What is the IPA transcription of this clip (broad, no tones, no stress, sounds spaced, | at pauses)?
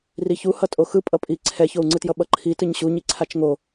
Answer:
r i ç u h ʌ tʼ o x ɯ pʼ ʌ pʼ i ǀʰ ɛ ç o u̯ ŋ͡ǀ ɯ t j ʌ ɓ ʌ ǃʰ i t ɯ ɲ ɕ u ɲ i ǀʰ a t͡ʃ ŋ o